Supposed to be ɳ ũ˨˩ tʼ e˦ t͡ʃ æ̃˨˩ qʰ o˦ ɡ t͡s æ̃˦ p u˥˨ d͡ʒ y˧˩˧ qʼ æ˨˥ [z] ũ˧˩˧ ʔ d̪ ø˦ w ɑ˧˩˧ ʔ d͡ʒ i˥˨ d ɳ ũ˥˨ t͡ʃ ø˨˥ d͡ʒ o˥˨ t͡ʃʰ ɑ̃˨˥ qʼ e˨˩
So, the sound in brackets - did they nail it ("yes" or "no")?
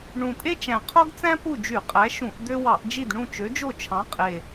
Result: no